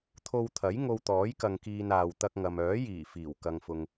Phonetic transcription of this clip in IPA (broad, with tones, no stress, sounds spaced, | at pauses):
t̪ʰ o˧ w t̪ʰ ɐ˨˥ j ŋ o˧ w t̪ ɔː˨˥ j k ɐ˨ ŋ k iː˨ n aː˨ w t̪ ɐ˧ k̚ ŋ ɐ˨ m œː˨˥ j iː˨˩ f iː˨˩ w k ɐ˨ ŋ f ʊ˨ ŋ